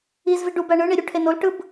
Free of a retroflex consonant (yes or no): no